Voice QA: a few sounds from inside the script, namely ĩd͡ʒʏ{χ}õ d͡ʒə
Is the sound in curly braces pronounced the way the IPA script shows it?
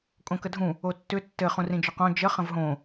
no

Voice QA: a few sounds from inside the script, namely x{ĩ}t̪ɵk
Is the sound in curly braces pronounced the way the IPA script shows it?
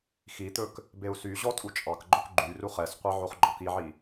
no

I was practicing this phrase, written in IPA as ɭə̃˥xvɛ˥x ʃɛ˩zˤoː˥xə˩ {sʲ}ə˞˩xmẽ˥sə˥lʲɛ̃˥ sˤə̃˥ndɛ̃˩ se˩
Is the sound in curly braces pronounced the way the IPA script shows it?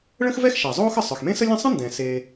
no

